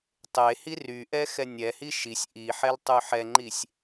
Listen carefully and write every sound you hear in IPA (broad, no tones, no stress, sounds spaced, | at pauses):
tˤ e h i r y ʔ ɛ x ɛ nʲ ɛ h i ʃ i sʲ ʔ i ħ ɛ l tˤ y ħ ɛ ŋ͡ǃ i sʲ